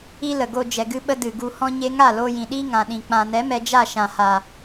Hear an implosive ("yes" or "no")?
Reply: yes